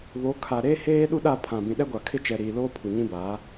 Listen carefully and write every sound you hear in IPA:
β o˨˦ kʰ a˨ ɾ eː˦ h eː˦ ɗ u˦ ɗ a˦˨ pʰ ã˨ b ĩ˨ ɗ ɛ˦ ɡʷ a˨ kʰ ɪ˦ t͡ʃ ɛ˨ ɾ iː˨ l oː˦ pʰ u˨ ɲ ĩ˦ b aː˨˦

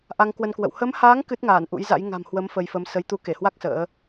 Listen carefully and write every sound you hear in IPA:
ʔ a˧ ŋ k w ə˧ n k w ə̰˧˨ w h ə˨˦ m h aː˨˦ ŋ k ɨ˦˥ t̚ ŋ aː˧˩ n ʔ ṵ˧˥ j z a̰˧˥ j ŋ a̤˨˩ m h w ə˨˦ m f ə˧ j f ə˨˦ m s ə˨˦ j t̪ u˨˦ k e˧˩ h w a˦˥ k̚ s ə̰ː˧˥

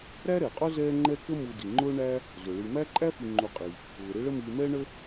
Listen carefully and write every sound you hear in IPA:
ɾ æ˥ ɾ ɛ˩ qʼ ʊ˥ z ɛː˦ ŋ͡ǃ ɛ˦ k ə˦ m u˨ d i˩ ŋ͡ǃ ʊː˦ ɳ æ˦ | z ʊ˩ ɭ i˨ m æ˥ ǃʼ æ˥ f i˨ ŋ͡ǃ u˨ qʼ i˩ | ʊː˩ ɾ ɪ˦ ɭ ə˦ m iː˨ m ɛː˥ ɳ ə˥

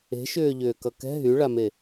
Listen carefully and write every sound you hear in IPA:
e̤ ʃ ʏː ʎ ʏː k ʌ k ɛ̤ ɦ y ɭ a m e

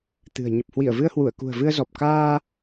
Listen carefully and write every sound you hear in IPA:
t̪ ɨ̤˨˩ ə̯ ɲ ə˨˩ p̚ h w i˧˩ ə̯ v ɨ˧ ə̯ h w u˧˩ ə̯ k ṳ˨˩ ə̯ v ɨ˧ ə̯ z ɔ˨˩ p̚ k aː˧

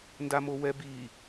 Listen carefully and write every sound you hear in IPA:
n d a m o w ɛ b i

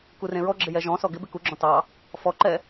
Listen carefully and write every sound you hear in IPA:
k u r ẽ ɹ ɔ ɡ͡ǁ ɪ j ɛ ʒ ɔ̃ s ɔ ɡ ɪ b ɪ k u ɡ͡ǁ ɔ̃ t ɑ | f ɔ ǃ ɛ

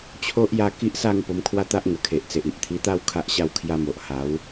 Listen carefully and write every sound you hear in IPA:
t͡ɕʰ o˦ ʔ j a˥˧ k i˦ ʔ s a˥˧ ŋ p o˧ m kʰ w a˦ t̪ a˦ ʔ ŋ ə˨˩ kʰ e˨ ʔ t͡s e˨ ʔ i˨ ʔ t̪ʰ i˧ t̪ a˥˧ w kʰ a˦ ʔ ɕ a˥˧ w kʰ j a˦ m o˨ ʔ h a˨˦ w

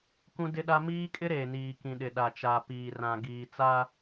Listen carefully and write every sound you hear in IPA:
k ũ˦ d ɪ˦ ɗ a˦ m iː˦ kʼ ɪ˦ ɾ eː˨ n iː˨ k ĩ˨ ɗ ɪ˨ ɗ a˨ t͡ʃ a˨ p iː˨ r ã˨ ɡ iː˨ t͡s a˦

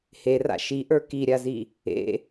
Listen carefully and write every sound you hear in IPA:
h e r a̰ ʃ i ʔ ə˞ k i ɾʲ a z i | ḛ

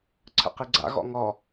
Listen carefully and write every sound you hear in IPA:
ǀʰ ə̰ q i ɡ͡ǀ a̰ ɣ ɔ̰ ŋ ɔ

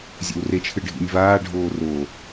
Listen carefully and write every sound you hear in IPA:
zʲ ḛ w r e t͡ʃʰ ɨ ɖʱ ḭ nʲ v aː ɖʱ oː r o

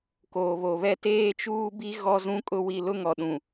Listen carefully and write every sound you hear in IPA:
k oː˨ β o˨ β ɛ˦ t eː˦ t͡ʃ uː˦ b i˦ ɣ ɔ˦ z ũ˦ kʼ ʊ˦ w i˦˨ l ʊ˦ ŋ ɔ˨ ɗ ũ˨

